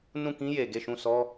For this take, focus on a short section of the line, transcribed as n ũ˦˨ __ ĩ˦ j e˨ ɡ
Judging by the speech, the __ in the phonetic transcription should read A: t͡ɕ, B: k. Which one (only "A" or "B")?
B